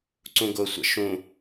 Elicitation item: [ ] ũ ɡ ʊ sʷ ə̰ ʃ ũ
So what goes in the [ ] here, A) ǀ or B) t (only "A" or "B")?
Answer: A